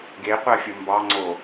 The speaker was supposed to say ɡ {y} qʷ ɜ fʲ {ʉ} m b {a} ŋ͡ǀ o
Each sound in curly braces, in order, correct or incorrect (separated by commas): incorrect, incorrect, incorrect